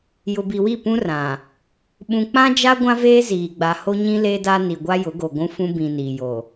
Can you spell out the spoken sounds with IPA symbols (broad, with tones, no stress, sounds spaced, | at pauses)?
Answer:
j ʊ˨ b i˨ w i˦˨ p ũ˦ r ã˨ | ɓ ũ˨ k͡p ã˦ d͡ʒ a˦ ɡʷ ã˦ v eː˦ z iː˨ ɡ͡b a˨ h o˦ ɲ ĩ˦ l eː˦ d a˦ n i˨ ɡʷ a˦ j ʊ˨˦ ɡ o˨ ɡʷ ũ˦ f ũ˦ b ĩ˨ n iː˨ j o˨